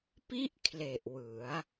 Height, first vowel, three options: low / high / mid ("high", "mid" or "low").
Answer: high